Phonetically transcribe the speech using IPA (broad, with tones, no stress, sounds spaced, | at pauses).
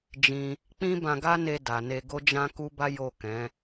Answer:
d͡ʒ ĩ˧ | k͡p ĩ˦ b ã˧ ɡ a˦ n e˧ d a˨ n e˧ ɡ o˦ d͡ʒ ã˦ k u˦ b a˦ j o˦˨ k ɛ̃˨˦